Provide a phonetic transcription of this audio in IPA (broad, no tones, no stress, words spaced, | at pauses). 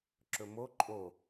ǁɵmo ǃʼo